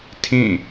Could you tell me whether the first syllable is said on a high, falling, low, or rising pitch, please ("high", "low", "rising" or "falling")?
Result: falling